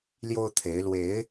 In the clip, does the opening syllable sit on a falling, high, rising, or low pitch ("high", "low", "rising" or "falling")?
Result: high